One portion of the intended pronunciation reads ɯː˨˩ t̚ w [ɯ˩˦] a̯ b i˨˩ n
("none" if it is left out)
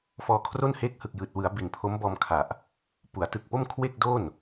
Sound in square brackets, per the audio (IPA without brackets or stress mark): ɯ˩˦